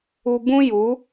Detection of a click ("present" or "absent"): absent